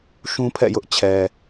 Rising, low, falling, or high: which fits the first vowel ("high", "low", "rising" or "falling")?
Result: high